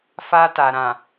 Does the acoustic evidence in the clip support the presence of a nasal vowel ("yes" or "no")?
yes